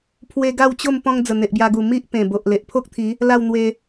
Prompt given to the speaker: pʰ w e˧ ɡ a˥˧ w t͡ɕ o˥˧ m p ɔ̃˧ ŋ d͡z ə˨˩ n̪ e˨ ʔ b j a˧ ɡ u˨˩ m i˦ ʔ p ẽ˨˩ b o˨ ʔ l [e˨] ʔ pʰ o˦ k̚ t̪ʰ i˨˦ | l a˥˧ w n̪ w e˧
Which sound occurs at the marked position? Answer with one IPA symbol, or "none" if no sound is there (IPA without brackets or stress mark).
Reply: e˨